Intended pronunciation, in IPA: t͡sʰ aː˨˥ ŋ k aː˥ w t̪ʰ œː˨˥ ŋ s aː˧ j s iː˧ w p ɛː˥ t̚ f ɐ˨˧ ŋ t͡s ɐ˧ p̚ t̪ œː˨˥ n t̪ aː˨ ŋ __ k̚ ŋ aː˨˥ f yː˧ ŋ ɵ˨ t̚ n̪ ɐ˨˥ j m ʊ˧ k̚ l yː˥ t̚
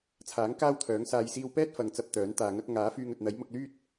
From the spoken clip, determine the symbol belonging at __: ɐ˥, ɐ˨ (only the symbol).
ɐ˥